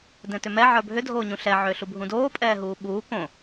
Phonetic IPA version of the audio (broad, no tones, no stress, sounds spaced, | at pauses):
d ɛ̃ t ʏ m ɛ ʕ ə˞ bʱ ʏ dʱ oː ɲ ũ ɬ ɛ ʕ ʏː ɬ u bʱ ũ d oː pʼ ɛː ɦ uː ɓ uː k õ